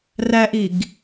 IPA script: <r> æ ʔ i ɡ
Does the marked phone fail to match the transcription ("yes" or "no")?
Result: no